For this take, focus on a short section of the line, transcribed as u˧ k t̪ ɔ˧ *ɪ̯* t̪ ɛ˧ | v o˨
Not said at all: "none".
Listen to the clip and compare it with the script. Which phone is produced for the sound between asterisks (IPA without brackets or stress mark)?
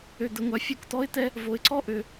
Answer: ɪ̯